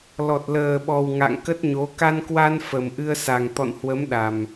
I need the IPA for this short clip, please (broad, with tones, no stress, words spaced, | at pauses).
lɔ˨˩t̚ləː˨˩ɓɔ˨˩w ŋa̰˧˨ŋ kə˦˥t̚ɲo˨˦ ka˧nkwa˧n fə˨˩mʔɨ˧ə̯sa˨˩ŋ t̪ɔ̰˧˨nhwə˨˦m ɗa˨˩m